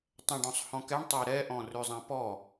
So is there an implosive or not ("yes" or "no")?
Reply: no